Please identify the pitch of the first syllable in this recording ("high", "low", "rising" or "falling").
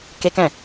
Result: high